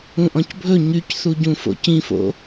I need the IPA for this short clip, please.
ũʔɔ̃cbʱɵ ɲycθuɟũ fo̰cĩfo̰

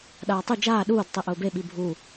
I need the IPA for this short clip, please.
ɗaːtˤu d͡ʒaː ɗuːd tˤiʔʊːbe ɓibʱu

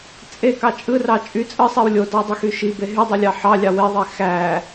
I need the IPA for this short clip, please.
t͡sʼekɑ t͡ʃʼɯrɑ t͡ʃʼy t͡sʼɯsˤiw lʲodɑdˤexy ʃibe ɦydˤilʲɑ ħɑlʲɑ weðˤe xæ

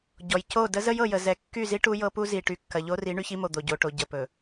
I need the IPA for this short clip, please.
ɟɔ˨j co˦˨ də˦zə˦j ɤ˨jə˨ zɛ˨kːy˦˨zi˦ ʈu˦jɤ˦pu˦zi˨ ʈy˨kːɐ˨ʎo˦ri˨˦ ɳy˦çi˦mo˨ d̪o˨ɟo˨ʈo˨ ɟə˨pɵ˨

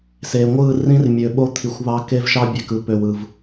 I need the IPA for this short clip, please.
se˨ ŋʷɯ˦˨ rĩ˦rmʲø˨ ɓo˦t̪ʰi˨xʷβɑ˦ ke˦vʃɑ˦bʲe˨k ɯ˦pø˨w ɯ˨v

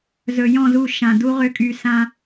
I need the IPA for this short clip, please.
zɵ˨jɔ̃˦˨zu˦˨ ʃã˨du˦ ʁø˦˨kʼy˨ sã˦

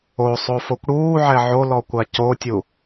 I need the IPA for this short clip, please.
osˤo fokʷɽuː ʕɛʕolɔ kʷacotʲu

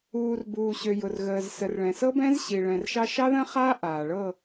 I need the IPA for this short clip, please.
uː˨rbuː˨ɕø˨ jʊ˨rɣəː˨z sə˨rɭɛ̃˨sɤ˦bɛ̃˦z ɕi˨ɭɛ̃˨rʃɑ˦ ʃɑ˦ðə̃˦χaː˦ ʔaː˨ɭɤ˦˨

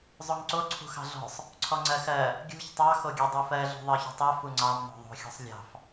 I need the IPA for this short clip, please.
zˤoŋǀo ǀʰṳxɑ̤ɮɔ̤sˤ | ǀʰɔŋ͡ǀɜxɜ | ɡʲṳç tˤɑ xoɡʲɜdˤufɜ ɮṳðˤɜço̤tˤɜ fuŋ͡ǀɑm no̤ðˤo̤ xʲɔ̤sˤlʲɑ̤f

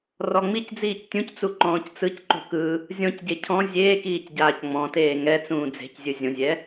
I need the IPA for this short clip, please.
rɔŋ͡micd͡ziːc tʲũct͡su ǃɔ̃ːct͡sɯcǃo̤ kɯ | zʲɔ̃cɟe cʰɔ̃ zʲeːkiːc ɟaːcŋ͡mɔ̃teː ŋɛt͡sũː d͡ze̤czʲɯ zʲõzʲɛ

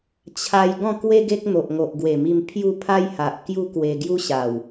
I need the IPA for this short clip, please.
t͡ɕʰa˧j ɡɔ̃˥˧kwe˦ ɡe˦k̚n̪o˨ʔ ŋo˨ʔɡwe˨˩mi˧m pʰju˥˧ pʰa˦jha˨ʔ kju˦kwe˧ɡju˦ ɕa˨˩w

